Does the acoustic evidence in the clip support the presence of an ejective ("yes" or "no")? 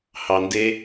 no